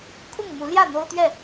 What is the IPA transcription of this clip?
kʰ ʊ˥˨ ŋ m u˨˦ l j ä˥˨ n̪ o˦ ʊ̯ t̪ ɥ ɛ˥˨

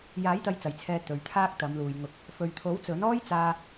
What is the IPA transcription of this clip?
j aː˨˥ j t̪ ɐ˨˧ j t͡s ɐ˨˩ j t͡sʰ ɛː˨ t̪ ɵ˨ ɥ t̪ʰ aː˥ k̚ t̪ ɐ˨˧ m l uː˨ j ŋ ʊ˨ k̚ | f ɵ˨ ɥ t̪ʰ o˨˥ w t͡s ɵ˨˥ n ɔː˥ j t͡s aː˧

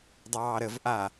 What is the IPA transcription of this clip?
dˤ ɑː ɾ ə v ʔ a

